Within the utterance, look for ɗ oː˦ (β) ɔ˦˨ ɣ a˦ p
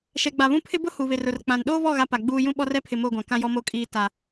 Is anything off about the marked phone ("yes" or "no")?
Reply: no